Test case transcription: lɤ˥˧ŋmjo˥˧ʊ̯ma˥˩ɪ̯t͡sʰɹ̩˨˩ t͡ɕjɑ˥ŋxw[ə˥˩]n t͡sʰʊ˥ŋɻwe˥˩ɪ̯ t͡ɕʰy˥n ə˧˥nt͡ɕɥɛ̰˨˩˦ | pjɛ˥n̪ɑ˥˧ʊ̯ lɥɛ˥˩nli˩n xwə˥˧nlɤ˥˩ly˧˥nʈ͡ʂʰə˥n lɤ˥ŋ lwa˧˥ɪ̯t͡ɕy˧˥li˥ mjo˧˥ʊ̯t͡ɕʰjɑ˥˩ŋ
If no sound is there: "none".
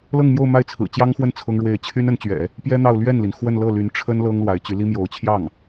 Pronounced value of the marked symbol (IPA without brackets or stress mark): ə˥˩